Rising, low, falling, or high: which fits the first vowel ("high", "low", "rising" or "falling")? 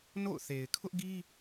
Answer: falling